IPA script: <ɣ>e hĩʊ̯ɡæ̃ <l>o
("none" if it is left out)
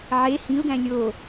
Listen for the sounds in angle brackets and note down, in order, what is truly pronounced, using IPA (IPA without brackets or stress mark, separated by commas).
ʕ, lʲ